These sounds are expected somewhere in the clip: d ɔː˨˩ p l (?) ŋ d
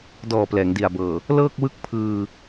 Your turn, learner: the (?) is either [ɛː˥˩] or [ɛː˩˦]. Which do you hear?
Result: ɛː˩˦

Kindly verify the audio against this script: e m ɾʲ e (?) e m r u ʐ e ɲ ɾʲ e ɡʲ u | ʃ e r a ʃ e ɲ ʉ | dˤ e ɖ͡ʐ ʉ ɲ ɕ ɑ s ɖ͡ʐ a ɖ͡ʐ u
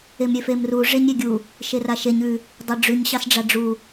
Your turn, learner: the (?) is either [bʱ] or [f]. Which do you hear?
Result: f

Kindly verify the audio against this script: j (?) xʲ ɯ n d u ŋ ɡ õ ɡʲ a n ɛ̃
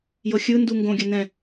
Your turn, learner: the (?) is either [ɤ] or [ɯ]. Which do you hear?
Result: ɤ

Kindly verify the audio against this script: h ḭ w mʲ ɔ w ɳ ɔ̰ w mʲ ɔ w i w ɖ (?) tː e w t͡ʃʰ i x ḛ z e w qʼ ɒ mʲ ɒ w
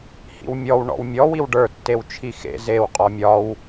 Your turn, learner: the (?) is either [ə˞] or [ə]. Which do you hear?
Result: ə˞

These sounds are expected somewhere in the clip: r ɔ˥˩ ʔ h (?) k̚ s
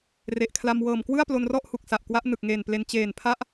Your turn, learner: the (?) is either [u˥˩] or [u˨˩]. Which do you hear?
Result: u˨˩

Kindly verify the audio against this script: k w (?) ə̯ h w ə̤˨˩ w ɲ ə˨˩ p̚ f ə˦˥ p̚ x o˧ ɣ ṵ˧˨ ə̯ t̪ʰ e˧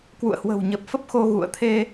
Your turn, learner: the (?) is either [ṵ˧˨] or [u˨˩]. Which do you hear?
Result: ṵ˧˨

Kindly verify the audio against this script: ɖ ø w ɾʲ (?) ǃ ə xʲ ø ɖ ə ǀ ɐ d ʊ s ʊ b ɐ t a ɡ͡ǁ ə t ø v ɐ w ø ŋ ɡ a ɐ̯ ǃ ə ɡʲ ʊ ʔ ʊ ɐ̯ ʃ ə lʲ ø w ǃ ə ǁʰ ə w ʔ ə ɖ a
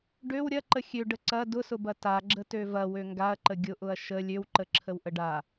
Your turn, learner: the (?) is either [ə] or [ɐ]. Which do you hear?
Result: ɐ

